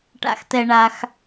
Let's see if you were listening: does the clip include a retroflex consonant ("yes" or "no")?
yes